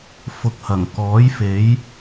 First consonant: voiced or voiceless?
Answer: voiceless